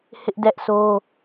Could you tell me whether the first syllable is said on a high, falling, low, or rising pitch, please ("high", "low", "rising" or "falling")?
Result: high